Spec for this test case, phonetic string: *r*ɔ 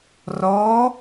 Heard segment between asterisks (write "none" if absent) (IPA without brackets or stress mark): r